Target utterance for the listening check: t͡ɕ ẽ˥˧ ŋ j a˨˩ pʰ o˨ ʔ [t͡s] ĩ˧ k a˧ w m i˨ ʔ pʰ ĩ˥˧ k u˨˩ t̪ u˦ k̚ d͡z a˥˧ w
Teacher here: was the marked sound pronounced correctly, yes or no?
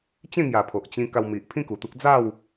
no